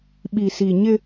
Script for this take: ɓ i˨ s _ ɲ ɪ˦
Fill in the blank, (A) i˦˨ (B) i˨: B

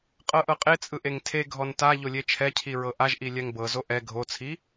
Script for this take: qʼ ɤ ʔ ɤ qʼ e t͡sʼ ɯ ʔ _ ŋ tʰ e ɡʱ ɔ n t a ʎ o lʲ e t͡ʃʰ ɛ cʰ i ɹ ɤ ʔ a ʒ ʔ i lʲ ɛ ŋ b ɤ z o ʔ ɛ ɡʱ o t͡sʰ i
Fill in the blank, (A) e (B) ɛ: A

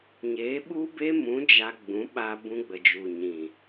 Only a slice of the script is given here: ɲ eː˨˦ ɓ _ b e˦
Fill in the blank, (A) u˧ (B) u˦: B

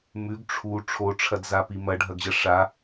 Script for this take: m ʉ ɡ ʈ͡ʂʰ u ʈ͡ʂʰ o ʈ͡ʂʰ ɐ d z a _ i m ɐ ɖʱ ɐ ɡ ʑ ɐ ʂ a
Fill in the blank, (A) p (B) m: A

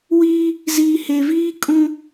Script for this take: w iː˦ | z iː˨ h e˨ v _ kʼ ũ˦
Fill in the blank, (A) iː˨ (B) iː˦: B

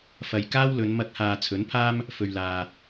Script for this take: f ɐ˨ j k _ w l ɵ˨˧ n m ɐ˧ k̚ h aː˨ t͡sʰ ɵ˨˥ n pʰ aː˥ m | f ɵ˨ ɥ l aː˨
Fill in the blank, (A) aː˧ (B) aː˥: B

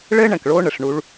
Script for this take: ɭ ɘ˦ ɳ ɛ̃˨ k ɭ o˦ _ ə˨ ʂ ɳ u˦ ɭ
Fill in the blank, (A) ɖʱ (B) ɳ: B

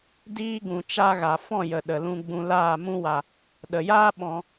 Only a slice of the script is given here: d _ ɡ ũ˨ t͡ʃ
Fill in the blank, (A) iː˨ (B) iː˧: B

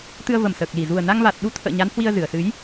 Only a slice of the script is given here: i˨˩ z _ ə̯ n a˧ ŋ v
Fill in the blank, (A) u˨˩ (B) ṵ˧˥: A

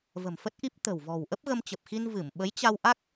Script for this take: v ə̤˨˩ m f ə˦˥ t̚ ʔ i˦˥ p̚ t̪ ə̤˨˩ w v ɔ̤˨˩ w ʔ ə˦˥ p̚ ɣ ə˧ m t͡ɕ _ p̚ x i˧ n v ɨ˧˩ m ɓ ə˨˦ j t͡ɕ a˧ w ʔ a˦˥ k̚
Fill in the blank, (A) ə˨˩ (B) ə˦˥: A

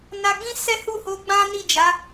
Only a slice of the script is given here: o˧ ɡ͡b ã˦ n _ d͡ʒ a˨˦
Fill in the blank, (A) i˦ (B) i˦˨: B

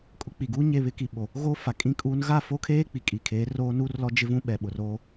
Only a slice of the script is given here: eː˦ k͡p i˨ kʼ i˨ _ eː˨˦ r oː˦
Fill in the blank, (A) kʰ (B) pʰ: A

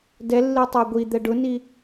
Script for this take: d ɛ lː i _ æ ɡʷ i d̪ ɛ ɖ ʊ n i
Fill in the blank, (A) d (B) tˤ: B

